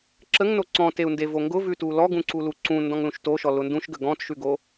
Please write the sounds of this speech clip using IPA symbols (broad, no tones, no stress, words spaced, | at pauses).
ǁəŋno ǀɔ̃teu̯nde voŋɡʊvʉtu lɔɡũǀulu ǀũ ndɔ̃ŋlũʃtoʃɔ lʊndũʃɡə ɡɔ̃tʃʉɡo